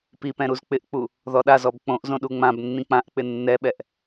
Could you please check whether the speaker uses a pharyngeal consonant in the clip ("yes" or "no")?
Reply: no